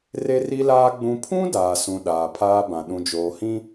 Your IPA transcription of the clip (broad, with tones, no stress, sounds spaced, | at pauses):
r e˦ r i˦ l aː˦ ɡ͡b ũ˨ pʰ ũ˦ d aː˨ s ũ˨ ɗ aː˨ pʰ aː˦ b ã˨ ɗ ũ˨ d͡ʒ oː˨ h ĩ˦